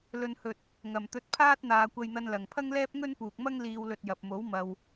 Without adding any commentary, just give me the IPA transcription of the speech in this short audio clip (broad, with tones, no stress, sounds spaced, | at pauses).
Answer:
l ɵ˨ n h ɵ˨ t̚ | ŋ ɐ˨ m t̪ ɵ˧ t̚ pʰ aː˥ t̚ n̪ aː˧ kʷ ɐ˧ j n̪ ɐ˧ n l ɐ˨ ŋ pʰ ɐ˥ ŋ l ɛː˥ p̚ ŋ ɵ˥ n p uː˨ k̚ m ɐ˥ ŋ l iː˧ w l ɵ˧ t̚ j ɐ˨ p̚ m o˨˥ w m ɐ˨ w